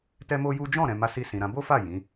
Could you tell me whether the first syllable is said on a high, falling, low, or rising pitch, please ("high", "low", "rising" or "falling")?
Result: high